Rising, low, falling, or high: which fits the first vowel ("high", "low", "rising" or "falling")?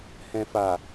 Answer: low